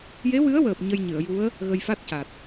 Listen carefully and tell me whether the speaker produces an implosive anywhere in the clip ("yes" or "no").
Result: no